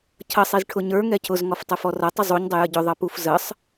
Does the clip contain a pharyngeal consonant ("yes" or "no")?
no